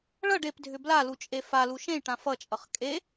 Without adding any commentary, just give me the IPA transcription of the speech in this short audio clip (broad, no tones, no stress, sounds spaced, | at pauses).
ɭ ʌ ɖ e p dʱ ʏ b l a l u t͡ʃʼ e f a l u ʃ ẽ j ʈ ã f ʌ t͡ʃʼ ʌ χ kʼ e